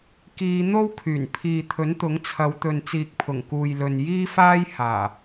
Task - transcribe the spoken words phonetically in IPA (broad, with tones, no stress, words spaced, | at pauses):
kiː˨˧n̪o˥w kʰyː˨˩npʰiː˨t̪ʰɵ˨˥nt̪ʊ˨˥ŋ t͡sʰɐ˨˧wt̪ɵ˨n t͡siː˨k̚pʰʊ˨˩ŋkuː˨jlɵ˨n jiː˥faː˥j haː˨˩